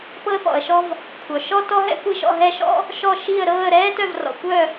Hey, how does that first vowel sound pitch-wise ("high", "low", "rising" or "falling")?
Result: high